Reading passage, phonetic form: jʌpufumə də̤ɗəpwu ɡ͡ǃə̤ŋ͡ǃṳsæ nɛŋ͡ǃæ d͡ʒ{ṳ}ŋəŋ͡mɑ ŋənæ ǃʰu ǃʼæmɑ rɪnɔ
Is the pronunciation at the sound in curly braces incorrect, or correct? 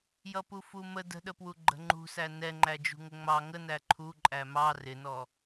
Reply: correct